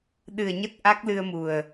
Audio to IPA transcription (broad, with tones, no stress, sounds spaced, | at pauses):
ɗ ɨ˨˩ ə̯ ɲ ə˦˥ t̚ ʔ a˦˥ k̚ l ɨ˧ ə̯ m u˨˩ ə̯